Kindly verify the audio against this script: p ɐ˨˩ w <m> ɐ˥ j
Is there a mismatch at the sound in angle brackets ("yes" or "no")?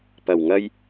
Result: yes